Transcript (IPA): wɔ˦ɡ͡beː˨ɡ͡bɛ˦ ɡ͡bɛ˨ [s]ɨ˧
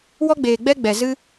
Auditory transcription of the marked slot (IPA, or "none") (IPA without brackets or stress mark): z